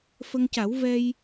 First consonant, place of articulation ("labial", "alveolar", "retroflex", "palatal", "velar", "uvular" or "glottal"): labial